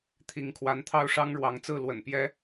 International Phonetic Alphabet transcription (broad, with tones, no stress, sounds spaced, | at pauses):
t̪ʰ i˨˦ ŋ kʰ w a˨˦ n t̪ʰ ɑ˥˨ ʊ̯ ʂ ɑ˦ ŋ ɻ w ɑ˨˦ ŋ t͡s ɹ̩˥˨ l w ə̰˨˩ n p j ɛ˦